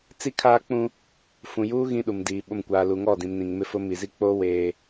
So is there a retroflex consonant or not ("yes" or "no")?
no